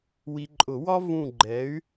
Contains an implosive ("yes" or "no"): no